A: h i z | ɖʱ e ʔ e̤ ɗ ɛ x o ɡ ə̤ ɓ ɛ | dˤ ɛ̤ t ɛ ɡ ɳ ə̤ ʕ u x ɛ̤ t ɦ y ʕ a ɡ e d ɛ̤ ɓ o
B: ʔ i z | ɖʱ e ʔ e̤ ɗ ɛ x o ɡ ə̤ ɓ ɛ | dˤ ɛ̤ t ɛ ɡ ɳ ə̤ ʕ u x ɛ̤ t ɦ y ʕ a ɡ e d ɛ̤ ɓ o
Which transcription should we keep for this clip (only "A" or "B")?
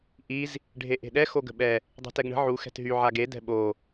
B